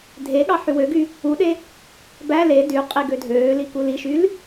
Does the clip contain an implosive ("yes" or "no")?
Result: yes